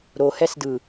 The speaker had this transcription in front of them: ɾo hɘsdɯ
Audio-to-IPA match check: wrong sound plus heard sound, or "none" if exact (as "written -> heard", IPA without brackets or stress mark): ɘ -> ɛ